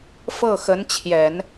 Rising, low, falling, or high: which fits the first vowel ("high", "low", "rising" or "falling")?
falling